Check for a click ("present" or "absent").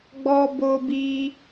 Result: absent